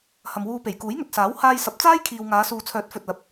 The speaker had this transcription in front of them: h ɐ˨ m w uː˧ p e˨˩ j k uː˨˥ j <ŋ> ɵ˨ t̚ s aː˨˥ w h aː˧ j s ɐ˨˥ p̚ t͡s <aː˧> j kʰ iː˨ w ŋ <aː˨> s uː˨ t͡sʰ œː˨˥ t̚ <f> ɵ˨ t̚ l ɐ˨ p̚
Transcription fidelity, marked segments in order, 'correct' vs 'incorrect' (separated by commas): correct, incorrect, incorrect, correct